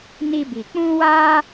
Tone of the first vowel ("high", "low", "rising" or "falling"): high